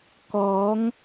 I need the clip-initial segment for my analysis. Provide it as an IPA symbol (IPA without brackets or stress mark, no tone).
k